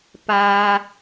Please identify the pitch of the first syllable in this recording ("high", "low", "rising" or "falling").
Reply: low